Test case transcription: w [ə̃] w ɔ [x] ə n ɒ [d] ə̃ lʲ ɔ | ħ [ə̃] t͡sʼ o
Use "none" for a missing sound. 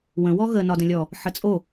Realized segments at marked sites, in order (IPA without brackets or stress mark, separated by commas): ə̃, ɣ, d, ə